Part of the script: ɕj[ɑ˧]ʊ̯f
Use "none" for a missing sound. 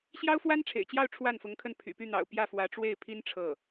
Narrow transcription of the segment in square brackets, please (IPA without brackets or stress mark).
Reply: ɑ˥